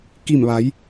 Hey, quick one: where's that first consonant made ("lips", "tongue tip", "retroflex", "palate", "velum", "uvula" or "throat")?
velum